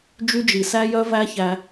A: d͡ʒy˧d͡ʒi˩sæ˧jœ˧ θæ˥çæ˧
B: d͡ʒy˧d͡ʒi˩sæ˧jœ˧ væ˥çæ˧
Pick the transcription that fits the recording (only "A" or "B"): B